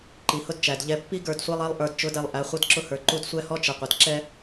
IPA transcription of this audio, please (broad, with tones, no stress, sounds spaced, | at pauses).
ǃ i˨ h ʊ˦ d t͡ʃ æ˨ d ʎ ɛ˨ pː i˦ ɡ ə˞˦˨ d sʷ ɛ˦ lˠ ɛ˦ lˠ ʔ ə˞˨ d t͡ʃ ʊ˨˦ d ɛ˨ lˠ ʔ æ˨˦ χʷ ʌ˦ d ǁ ʊ˦ h ə˞˨ ǃ u˦ d sʷ ɛ˦ h ɔ˦ t͡ʃ ə˨ qʷ ə˨ d ǁ ɛ˦